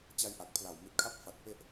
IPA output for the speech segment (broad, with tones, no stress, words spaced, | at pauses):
t͡ɕa˦˥jʔa˨˩k̚pʰla˨˩w mi˨˩t̚kʰa˦˥p̚fa˨˩t̚ pe˥˩ʔ